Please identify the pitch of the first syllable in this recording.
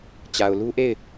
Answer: low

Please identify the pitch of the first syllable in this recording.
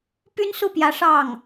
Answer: high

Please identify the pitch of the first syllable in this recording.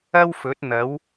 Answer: high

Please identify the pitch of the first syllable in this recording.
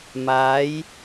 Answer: rising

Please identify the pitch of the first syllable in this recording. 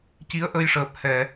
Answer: rising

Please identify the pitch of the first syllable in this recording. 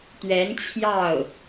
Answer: rising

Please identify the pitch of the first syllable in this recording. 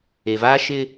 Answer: low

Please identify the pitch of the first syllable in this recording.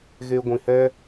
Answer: high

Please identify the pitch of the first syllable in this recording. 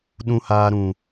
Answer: high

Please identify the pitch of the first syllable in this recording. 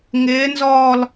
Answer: rising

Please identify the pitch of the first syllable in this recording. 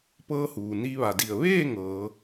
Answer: rising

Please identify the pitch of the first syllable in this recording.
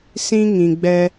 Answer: high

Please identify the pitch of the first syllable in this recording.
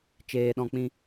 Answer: low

